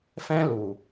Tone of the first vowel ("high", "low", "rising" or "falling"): high